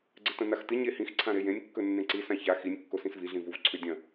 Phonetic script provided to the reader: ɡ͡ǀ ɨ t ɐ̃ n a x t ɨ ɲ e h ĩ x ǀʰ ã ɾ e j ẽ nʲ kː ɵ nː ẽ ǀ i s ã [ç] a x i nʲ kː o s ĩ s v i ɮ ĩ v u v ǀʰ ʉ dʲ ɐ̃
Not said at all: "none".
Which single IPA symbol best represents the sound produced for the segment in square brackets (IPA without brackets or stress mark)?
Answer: ç